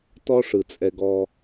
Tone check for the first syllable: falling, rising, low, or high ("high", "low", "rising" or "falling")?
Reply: high